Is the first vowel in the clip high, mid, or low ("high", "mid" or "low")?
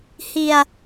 high